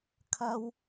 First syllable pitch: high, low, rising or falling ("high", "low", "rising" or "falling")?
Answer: high